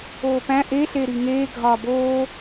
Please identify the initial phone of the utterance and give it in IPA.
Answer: oː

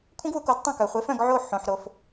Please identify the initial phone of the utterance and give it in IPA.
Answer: kʷʰ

